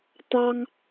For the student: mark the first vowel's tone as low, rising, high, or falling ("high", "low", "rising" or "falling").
high